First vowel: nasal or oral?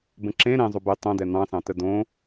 nasal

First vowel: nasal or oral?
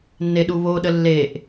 oral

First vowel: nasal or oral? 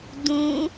nasal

